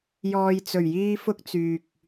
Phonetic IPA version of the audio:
j ɔː˨ j t͡s ɵ˨˩ ɥ j iː˧ f ʊ˥ k̚ t͡s yː˨ k̚

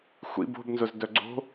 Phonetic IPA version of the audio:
xʷ ḭ b o̤ b n z ʊ z d œ ɡ͡ǀ o̤

